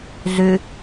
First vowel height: high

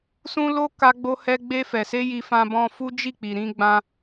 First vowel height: high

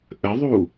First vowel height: mid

